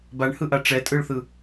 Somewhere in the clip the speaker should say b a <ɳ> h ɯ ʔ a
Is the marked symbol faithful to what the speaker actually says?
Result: yes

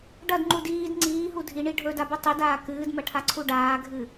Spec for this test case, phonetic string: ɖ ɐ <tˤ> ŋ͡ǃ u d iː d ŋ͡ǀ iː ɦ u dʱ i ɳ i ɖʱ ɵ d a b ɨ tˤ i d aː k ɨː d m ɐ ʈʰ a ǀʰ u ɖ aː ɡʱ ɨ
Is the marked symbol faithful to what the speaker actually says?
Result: no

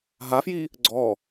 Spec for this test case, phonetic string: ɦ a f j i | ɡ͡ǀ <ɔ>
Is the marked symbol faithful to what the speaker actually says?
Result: yes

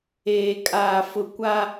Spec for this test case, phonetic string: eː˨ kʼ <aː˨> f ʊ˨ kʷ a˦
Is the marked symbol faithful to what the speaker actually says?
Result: yes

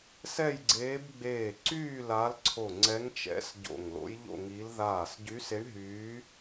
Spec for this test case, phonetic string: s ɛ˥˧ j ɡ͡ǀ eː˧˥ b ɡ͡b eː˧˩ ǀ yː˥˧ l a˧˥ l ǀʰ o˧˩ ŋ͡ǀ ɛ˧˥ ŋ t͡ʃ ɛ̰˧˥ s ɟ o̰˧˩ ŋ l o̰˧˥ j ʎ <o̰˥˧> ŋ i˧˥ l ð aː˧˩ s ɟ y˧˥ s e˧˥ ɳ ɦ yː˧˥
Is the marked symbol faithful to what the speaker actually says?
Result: yes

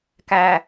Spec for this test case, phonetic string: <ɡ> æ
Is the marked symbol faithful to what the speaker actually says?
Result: no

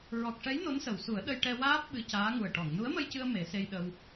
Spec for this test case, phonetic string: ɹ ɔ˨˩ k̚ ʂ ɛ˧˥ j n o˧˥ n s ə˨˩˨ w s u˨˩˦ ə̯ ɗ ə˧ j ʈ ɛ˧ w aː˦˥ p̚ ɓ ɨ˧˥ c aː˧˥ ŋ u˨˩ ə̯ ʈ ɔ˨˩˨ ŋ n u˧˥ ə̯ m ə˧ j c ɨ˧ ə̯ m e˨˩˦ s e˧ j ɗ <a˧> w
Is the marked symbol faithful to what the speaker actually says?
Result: no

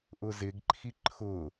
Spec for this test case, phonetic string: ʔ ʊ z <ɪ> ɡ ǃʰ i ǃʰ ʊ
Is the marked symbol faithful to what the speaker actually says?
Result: yes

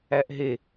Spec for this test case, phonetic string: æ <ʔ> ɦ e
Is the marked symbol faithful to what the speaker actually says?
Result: yes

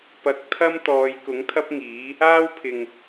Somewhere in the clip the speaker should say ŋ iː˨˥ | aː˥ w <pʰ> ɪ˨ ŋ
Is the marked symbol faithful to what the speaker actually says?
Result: yes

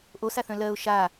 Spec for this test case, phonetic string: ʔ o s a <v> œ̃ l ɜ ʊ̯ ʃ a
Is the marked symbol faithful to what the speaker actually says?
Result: no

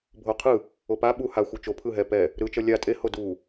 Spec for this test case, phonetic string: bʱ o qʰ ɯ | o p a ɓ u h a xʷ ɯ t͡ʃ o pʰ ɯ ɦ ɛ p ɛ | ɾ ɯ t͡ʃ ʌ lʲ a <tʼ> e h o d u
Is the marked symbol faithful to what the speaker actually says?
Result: yes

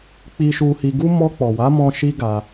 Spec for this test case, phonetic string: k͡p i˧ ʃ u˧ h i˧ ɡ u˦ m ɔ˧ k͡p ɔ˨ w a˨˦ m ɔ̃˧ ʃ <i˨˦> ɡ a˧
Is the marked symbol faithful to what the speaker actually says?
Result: no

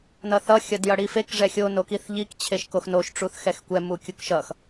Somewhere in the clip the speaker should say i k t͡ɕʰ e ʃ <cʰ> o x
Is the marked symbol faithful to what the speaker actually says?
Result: no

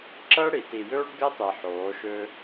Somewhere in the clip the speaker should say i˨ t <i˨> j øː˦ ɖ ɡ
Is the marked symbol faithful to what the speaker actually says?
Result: yes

